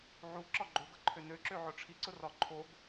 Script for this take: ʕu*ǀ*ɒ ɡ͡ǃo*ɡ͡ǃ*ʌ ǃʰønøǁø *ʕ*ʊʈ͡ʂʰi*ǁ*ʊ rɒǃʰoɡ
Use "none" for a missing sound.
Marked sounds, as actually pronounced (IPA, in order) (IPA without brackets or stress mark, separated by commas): ǁ, ɡ, ʕ, ǀ